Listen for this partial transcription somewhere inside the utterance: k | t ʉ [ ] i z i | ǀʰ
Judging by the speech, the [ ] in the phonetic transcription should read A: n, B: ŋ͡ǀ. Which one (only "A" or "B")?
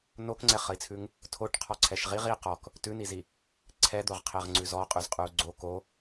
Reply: A